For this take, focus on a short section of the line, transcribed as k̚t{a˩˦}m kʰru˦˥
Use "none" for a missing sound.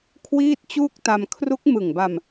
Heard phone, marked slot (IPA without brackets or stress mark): a˧